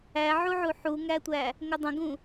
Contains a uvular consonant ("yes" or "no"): no